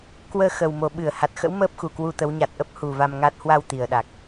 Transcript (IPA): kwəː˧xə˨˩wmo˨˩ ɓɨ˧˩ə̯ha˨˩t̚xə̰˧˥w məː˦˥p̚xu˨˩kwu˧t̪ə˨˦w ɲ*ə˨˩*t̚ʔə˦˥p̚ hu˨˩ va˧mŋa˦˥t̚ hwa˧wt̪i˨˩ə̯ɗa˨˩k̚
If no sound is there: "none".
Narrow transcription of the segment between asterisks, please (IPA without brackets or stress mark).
a˨˩